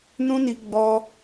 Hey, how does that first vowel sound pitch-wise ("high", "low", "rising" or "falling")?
high